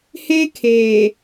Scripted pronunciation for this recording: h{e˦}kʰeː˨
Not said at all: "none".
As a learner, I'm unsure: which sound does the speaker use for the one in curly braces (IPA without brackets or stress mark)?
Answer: e˦